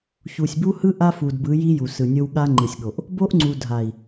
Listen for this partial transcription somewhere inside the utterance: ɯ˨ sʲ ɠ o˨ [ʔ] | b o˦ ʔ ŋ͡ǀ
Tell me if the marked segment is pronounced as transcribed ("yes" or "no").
yes